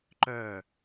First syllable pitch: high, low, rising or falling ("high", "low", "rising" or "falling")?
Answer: falling